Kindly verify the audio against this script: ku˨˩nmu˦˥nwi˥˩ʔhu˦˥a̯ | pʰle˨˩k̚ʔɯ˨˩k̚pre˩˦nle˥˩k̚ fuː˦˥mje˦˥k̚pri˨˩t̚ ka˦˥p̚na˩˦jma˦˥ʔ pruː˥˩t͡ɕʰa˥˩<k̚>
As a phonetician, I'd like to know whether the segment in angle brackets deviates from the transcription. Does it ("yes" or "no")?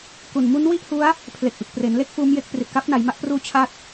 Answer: yes